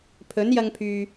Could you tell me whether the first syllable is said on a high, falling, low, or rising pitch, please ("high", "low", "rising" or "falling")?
rising